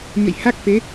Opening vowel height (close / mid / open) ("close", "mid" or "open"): mid